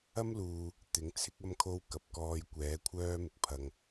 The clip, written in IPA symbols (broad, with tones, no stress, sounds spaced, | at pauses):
ɐ˥ m l uː˨ | t̪ ɪ˨˥ ŋ t͡sʰ ɪ˥ k̚ ɐ˥ m kʰ o˥ w k ɐ˨ p̚ k ɔː˧ j kʷ ɛː˨˥ kʷʰ œː˥ m ɪ˨ k̚ pʰ ɐ˧ ŋ